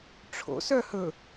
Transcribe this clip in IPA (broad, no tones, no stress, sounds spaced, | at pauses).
ʈ͡ʂʰ o̰ s œ h ɵ